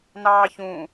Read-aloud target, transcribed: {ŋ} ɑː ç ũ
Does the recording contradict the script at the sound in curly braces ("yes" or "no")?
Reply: yes